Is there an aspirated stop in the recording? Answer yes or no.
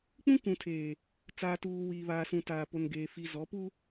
yes